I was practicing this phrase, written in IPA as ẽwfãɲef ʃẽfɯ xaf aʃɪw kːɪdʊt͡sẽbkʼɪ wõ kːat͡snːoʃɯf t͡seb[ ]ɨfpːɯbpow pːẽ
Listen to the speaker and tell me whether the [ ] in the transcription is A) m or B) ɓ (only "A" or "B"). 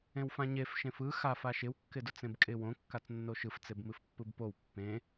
A